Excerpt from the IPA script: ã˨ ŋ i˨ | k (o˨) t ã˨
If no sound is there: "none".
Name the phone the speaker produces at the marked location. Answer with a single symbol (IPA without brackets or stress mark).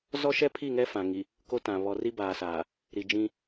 o˦